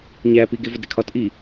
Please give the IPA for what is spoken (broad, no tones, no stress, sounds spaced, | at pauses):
ɲ æ p i ɡ e v ɒ d ɾ e kʰ ɒ t ʔ i